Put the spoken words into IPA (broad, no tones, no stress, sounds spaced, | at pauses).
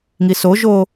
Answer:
ŋ i s o ʒ o